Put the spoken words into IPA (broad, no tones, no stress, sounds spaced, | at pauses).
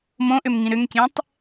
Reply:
m õ ʔ ʏ m ŋ ĩ ɾ ʏ ŋ kʲ ɛ̃ tˤ